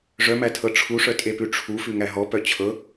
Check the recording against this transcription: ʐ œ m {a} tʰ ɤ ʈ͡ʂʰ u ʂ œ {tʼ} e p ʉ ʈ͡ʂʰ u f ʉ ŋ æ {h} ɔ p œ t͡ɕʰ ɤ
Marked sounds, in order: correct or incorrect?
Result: incorrect: æ, correct, incorrect: ɦ

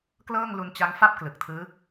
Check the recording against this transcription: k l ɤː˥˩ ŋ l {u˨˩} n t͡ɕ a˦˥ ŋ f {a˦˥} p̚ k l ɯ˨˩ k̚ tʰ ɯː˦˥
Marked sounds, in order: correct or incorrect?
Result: incorrect: u˧, incorrect: a˥˩

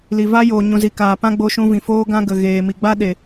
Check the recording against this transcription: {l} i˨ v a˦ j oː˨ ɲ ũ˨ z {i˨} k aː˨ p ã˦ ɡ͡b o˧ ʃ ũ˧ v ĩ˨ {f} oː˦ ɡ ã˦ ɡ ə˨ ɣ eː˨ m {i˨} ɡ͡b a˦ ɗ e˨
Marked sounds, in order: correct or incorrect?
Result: correct, correct, correct, correct

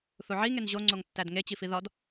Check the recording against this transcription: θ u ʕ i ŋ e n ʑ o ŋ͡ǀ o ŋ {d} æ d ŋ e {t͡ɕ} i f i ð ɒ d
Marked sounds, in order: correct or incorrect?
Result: incorrect: tː, correct

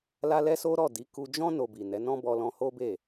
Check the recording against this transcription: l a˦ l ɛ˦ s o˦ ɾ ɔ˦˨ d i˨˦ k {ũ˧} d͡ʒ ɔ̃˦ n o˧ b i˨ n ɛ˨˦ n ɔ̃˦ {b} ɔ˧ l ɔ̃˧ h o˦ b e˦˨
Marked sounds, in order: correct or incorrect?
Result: incorrect: u˧, correct

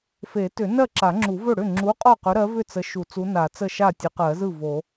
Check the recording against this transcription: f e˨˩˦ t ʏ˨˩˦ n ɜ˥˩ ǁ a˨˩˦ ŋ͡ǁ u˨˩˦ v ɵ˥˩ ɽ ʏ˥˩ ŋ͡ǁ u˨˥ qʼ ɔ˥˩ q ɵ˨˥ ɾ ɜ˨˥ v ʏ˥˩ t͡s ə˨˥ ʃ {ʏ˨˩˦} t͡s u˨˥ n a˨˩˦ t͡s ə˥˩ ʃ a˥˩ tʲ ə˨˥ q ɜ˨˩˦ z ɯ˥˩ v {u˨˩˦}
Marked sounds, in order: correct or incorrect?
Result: incorrect: u˨˩˦, incorrect: o˨˩˦

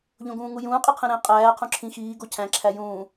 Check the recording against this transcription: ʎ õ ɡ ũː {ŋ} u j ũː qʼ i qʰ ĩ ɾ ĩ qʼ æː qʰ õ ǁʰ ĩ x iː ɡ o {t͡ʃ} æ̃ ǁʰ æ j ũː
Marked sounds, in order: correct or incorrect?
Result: correct, incorrect: cʰ

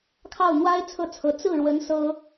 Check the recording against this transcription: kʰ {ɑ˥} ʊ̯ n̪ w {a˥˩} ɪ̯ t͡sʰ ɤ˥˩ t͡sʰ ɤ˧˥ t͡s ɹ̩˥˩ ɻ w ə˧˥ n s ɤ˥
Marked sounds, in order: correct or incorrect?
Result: incorrect: ɑ˥˩, incorrect: a˥

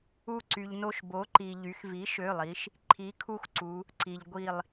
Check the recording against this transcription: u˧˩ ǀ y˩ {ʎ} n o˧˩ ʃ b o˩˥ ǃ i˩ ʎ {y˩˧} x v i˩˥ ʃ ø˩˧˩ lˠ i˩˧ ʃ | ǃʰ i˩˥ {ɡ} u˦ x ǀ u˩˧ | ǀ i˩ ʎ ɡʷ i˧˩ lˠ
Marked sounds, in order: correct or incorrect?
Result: correct, correct, incorrect: kʰ

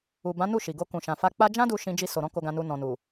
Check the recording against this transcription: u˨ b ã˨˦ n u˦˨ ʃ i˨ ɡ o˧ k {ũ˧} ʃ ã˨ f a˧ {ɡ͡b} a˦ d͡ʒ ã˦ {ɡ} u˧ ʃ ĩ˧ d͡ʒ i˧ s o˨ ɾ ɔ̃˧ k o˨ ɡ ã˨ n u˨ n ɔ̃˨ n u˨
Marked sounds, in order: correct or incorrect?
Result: incorrect: ũ˨, incorrect: k͡p, incorrect: d

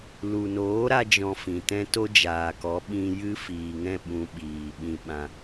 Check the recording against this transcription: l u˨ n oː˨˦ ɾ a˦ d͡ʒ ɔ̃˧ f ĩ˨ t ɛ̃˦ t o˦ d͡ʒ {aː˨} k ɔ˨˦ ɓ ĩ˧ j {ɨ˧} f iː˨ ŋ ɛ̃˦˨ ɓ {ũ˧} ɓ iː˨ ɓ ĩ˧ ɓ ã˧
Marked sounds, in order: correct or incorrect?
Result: correct, incorrect: ɨ˦, correct

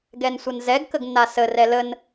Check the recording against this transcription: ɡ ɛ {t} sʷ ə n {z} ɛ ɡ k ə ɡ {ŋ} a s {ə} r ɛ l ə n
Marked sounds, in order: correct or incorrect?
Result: incorrect: n, correct, incorrect: nː, correct

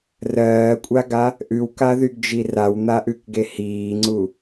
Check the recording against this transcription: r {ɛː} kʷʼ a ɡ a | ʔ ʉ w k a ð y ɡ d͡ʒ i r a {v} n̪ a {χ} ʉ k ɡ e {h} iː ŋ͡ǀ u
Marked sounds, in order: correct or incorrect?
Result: incorrect: ɜː, incorrect: w, incorrect: ʔ, correct

